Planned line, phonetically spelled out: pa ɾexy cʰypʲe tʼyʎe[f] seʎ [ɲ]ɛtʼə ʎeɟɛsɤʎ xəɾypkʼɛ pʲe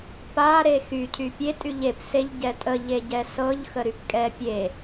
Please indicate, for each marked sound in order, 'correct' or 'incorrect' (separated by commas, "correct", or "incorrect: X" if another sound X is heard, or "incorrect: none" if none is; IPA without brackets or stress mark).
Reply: incorrect: p, incorrect: ɟ